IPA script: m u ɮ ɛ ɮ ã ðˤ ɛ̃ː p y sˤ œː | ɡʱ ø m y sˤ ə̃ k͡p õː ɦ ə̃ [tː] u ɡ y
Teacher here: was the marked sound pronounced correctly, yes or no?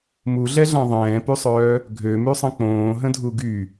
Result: no